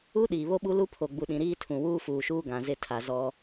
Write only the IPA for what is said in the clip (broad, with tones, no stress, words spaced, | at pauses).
u˦ ɗiː˨βo˦ɓu˦ lu˦ pʰo˨ɡ͡bu˨ɗĩ˨ ɾiː˦tʰũ˨ wuː˦fuː˨ʃuː˦ ɡã˨zɪ˦˨ tʰa˨ zɔ˦